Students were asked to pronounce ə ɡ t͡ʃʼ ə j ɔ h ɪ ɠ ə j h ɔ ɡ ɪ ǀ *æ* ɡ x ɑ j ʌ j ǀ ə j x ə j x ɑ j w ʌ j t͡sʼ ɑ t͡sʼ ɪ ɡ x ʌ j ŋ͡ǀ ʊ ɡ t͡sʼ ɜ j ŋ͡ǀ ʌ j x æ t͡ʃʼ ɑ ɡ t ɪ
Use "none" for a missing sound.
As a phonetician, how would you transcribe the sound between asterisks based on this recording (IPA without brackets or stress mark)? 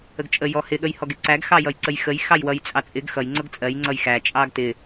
æ